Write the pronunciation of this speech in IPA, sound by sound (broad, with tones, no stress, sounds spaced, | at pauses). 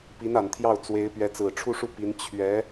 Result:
p i˧˥ n a˨˩ n t̪ʰ j ɑ˥˩ ʊ̯ t͡s w e˧˥ ɪ̯ p ɥ ɛ˧˥ t͡s ɹ̩˨˩ ʈ͡ʂʰ u˥˧ ʂ u˥˩ p i˧˥ n t͡ɕʰ ɥ ɛ˧˥